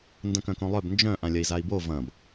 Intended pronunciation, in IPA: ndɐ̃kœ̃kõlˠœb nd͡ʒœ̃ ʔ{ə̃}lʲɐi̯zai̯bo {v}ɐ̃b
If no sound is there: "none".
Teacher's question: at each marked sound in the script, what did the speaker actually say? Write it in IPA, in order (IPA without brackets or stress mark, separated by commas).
ã, v